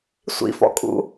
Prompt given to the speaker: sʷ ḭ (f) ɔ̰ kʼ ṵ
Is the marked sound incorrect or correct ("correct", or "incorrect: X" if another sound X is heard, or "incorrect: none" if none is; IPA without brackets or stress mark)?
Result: correct